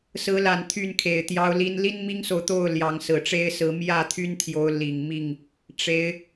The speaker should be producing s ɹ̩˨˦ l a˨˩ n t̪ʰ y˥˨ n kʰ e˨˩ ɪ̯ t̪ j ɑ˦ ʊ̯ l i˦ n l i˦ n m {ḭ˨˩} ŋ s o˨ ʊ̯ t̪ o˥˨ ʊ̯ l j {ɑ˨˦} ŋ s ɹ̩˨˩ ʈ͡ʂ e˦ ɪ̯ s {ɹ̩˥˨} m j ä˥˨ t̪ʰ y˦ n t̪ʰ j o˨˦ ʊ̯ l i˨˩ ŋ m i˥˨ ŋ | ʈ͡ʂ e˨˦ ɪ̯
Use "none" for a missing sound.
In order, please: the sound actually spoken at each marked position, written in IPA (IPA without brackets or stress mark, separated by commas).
i˦, ɑ˨˦, ɹ̩˨˦